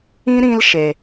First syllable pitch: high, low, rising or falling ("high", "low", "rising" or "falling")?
high